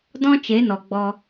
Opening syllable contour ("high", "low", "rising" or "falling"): high